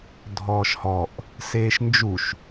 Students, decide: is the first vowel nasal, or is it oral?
oral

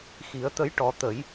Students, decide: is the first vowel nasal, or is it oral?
oral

